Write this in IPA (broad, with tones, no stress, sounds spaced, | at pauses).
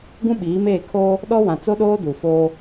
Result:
ɡ ũ˦ ɓ iː˨˦ m eː˦˨ kʰ oː˦ | ɗ ɔ˦ w ã˨ t͡s o˦ ɗ oː˦ d u˨ f oː˦